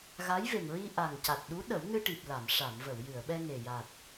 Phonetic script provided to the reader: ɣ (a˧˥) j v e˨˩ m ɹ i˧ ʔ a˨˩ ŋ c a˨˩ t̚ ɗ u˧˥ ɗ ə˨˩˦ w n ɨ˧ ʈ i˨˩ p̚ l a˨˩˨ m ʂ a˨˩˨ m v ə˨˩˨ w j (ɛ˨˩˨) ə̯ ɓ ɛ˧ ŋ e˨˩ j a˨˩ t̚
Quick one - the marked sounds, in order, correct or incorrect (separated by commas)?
correct, incorrect